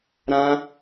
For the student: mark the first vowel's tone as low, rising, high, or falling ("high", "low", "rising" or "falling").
high